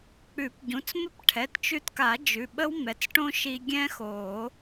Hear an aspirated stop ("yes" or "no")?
yes